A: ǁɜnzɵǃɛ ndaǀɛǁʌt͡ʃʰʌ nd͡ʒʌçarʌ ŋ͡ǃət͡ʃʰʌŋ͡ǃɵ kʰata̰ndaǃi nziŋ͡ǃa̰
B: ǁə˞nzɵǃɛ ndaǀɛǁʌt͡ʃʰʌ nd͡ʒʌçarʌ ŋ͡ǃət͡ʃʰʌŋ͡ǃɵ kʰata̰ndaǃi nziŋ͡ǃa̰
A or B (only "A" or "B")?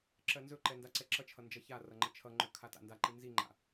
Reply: A